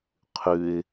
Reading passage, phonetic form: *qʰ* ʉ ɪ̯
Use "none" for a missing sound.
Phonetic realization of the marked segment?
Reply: qʰ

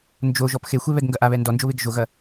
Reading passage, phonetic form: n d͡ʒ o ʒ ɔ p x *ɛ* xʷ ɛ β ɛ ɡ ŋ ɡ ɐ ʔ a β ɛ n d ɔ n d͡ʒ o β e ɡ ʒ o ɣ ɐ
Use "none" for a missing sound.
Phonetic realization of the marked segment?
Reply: e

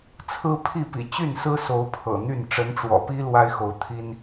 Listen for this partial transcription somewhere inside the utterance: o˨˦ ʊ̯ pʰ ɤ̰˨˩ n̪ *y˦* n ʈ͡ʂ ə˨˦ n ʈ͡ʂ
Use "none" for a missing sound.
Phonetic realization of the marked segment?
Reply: y˥˨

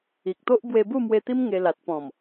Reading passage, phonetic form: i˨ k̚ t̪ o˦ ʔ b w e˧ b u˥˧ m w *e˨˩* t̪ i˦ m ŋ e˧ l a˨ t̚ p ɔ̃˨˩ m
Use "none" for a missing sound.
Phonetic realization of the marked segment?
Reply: e˧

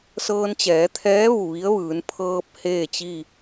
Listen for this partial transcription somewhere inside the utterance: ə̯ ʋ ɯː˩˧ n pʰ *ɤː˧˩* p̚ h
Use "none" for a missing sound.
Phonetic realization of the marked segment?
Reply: ɤː˧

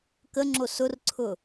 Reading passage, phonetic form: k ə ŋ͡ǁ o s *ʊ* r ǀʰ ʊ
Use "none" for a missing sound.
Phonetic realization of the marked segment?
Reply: ʊ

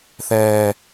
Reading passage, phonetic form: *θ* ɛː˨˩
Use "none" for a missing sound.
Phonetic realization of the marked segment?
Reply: θ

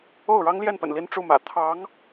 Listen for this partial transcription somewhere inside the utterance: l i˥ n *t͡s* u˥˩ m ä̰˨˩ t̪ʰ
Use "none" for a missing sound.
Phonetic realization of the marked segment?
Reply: ʈ͡ʂ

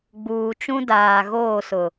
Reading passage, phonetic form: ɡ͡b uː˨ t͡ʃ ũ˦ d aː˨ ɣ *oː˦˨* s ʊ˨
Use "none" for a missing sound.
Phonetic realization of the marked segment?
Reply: oː˦˨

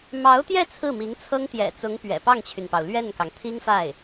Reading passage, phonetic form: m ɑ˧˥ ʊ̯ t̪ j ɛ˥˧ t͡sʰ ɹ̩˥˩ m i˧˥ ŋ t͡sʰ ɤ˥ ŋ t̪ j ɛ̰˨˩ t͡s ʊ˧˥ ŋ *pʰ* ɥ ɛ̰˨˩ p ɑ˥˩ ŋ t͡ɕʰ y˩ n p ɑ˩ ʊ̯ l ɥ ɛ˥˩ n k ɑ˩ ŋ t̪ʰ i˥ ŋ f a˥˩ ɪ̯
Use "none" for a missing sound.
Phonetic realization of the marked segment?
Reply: p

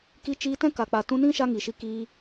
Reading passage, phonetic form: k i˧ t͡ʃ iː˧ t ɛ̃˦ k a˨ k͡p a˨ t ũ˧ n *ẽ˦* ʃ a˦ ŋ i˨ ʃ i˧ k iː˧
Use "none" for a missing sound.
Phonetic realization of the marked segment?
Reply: ĩ˦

